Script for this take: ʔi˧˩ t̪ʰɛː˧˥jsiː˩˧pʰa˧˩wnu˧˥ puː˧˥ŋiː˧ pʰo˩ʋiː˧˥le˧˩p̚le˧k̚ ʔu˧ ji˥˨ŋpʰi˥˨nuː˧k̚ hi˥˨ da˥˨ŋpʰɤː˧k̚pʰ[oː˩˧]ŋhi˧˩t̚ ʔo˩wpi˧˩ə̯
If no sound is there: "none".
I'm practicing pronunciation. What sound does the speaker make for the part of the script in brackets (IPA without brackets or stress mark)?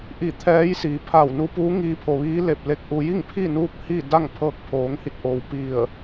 oː˩˧